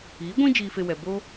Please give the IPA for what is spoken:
iː˨˦ɡʷĩ˦ d͡ʒiː˧fe˧wɛ˨boː˦

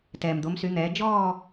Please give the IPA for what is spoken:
tɛː˩md̪o˩˧msy˩˧n̪ɛː˩˧ d͡ʒɔː˥˧

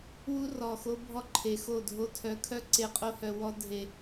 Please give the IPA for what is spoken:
wu˦rɔ˨xo˦ bʱɔ˦ǃʰe˨xo˦˨dʱo˦ tʰœ˨˦kʰœ˦ ǀe˦ qʼo˦hœ˨ wɔ˦ dʱe˨

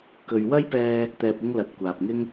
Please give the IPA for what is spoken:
kɵ˨ɥwɐ˥jpɛː˧ | t̪ɛː˨p̚ɪ˧ŋ lɐ˨t̚ kʷaː˨p̚ŋɪ˥ŋ

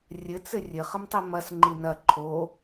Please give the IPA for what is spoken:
rʲɘt͡sɘ rʲɘχəmtˤi mɐsŋ͡ǃi nɐ ǃʰo

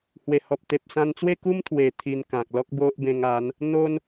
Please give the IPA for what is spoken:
hwe˨˩hɔ˨p̚t̪e˨p̚sã˧n t͡swe˥˧ku˦mt̪ʰwe˨˩ t̪ʰi˧nkã˨k̚ lɔ˦k̚bo˦ʔbẽ˧ŋa˨˦n | n̪o˦n

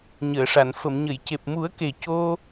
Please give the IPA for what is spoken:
ɲəː˨˩˨ʂa˨˩˨n fə˨˩˨mɲə˨˩˨j ce˨˩p̚mu˨˩˦ə̯ke˨˩ co˧

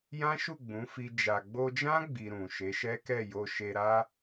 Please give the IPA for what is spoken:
jã˦ʃu˦˨ ɡ͡bũ˨˦fi˧ d͡ʒa˨ɡ͡bo˧d͡ʒã˦ ɡ͡bi˧ɾũ˨ ʃe˨˦ʃɛ˦kɛ˦˨ jo˧ʃe˧ɾa˦

